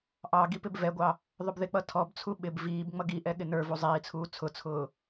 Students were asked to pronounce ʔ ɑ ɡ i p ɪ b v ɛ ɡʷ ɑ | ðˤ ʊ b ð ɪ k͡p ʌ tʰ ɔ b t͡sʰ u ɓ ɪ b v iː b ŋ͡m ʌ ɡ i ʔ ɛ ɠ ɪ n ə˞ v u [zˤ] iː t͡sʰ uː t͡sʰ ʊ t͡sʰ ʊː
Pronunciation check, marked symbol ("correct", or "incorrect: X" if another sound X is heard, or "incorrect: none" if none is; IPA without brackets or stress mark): correct